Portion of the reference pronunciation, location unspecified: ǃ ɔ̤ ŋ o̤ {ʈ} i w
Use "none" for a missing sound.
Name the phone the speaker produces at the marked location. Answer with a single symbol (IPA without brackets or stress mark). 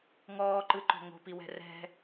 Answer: p